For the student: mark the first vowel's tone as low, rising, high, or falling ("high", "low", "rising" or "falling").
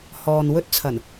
low